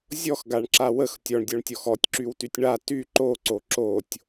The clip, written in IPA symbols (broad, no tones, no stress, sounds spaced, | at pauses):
zʲ ɔ x ɡ a ɳ ǁ a w ə x tʲ ɔ ɳ dʲ ɔ ɳ tʲ ɔ x ɔ tʲ ǁ y w t y tʲ ɳ a t y ǃ o ǀ o ǁ o tʲ